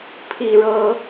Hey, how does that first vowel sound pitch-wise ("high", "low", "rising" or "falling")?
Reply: low